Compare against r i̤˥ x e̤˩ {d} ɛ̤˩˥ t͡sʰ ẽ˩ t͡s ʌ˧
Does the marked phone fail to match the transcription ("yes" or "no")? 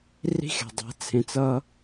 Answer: yes